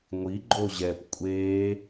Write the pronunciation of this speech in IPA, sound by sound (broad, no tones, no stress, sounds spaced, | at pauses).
ŋʷ i ɡ͡ǃ o ʑ ɛ p kʷʼ e